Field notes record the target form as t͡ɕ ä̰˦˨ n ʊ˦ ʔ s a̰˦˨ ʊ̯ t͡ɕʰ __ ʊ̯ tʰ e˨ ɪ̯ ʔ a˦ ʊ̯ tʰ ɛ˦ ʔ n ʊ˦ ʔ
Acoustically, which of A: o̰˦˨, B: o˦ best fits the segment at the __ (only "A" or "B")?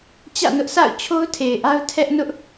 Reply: B